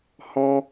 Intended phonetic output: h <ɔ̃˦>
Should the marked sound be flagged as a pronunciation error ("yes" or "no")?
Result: no